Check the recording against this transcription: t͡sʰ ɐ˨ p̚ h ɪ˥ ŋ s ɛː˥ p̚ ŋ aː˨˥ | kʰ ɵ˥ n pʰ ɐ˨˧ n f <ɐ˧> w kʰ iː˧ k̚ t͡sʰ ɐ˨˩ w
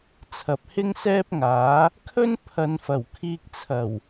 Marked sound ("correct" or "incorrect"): incorrect